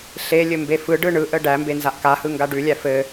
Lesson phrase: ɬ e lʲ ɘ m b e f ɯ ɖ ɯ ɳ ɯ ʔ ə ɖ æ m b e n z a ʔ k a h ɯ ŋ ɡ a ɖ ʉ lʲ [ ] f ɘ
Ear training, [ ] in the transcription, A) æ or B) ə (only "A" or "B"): A